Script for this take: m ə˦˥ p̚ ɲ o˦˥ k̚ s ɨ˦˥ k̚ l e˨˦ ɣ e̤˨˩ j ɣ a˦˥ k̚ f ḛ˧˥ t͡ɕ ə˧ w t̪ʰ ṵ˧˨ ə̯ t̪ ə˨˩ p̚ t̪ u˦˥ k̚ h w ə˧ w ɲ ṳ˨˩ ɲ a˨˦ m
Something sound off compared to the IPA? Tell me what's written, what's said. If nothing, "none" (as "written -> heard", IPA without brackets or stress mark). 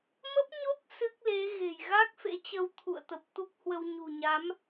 none